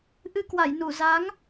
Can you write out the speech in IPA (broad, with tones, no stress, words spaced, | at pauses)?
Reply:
ʔɨ˧kwa˧˩j nu˧˩za˨˦ŋ